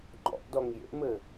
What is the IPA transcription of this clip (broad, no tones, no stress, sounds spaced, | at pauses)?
ŋ͡ǃ ɔ̰ ʔ d ɔ ŋ j ḛ m ɘ